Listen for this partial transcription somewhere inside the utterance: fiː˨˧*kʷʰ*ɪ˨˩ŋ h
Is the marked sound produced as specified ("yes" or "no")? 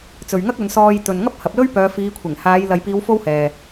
yes